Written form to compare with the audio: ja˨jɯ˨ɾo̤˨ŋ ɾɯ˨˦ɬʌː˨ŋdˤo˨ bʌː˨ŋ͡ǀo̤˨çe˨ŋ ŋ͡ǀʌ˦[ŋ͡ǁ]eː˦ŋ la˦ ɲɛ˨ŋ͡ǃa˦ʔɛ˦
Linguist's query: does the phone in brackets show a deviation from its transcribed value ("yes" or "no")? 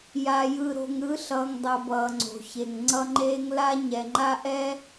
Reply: yes